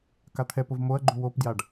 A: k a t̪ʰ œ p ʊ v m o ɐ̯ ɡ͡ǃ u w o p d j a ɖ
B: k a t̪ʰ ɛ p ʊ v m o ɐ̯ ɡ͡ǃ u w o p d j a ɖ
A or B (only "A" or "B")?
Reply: B